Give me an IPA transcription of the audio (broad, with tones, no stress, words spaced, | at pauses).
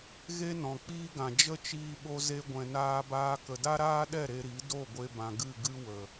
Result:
ɣe˦nɔ̃˨k͡piː˦ɡã˨ d͡ʒə˦t͡ʃiː˧ɓo˧ ze˦ɡʷɛ̃˧naː˦baː˦ kə˨da˦ɾaː˦ɗɛ˦˨ ɾe˧ɾi˨˦ do˦˨ɡʷe˧bã˨ ɡɨ˦˨ɡɨ˦ wə˨